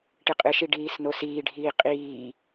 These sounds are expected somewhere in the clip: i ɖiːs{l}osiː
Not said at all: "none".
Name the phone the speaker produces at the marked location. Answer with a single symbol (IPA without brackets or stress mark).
n